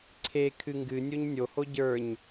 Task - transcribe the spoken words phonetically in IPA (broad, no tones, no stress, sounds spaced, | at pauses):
ǀʰ e kʰ ɨ ŋ ɡ ɨ nʲ o ɲ nʲ o h o ɟ ə˞ ɲ